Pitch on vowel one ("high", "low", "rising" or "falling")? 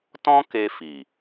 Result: high